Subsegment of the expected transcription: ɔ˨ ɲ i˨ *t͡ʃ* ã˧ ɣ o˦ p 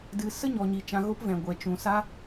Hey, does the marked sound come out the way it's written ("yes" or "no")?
yes